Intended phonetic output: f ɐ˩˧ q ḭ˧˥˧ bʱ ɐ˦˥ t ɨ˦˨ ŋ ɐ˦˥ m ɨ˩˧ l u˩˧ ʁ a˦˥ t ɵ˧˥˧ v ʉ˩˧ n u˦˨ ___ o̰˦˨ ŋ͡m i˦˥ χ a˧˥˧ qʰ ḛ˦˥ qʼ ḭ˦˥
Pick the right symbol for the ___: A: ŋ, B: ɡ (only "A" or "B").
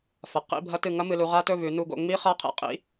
B